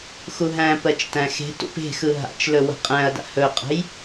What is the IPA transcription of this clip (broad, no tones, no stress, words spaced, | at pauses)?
xuɦæ̃pɜt͡ʃ tæ̃xe̤tṵp e̤ xɯɦa̰t͡ʃlɵ wə̤qʼæ̃ɐ̯da̰ hɵqʼə̤j